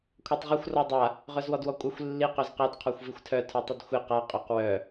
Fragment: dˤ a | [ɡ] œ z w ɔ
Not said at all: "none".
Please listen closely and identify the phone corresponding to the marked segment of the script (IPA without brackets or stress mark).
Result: ʁ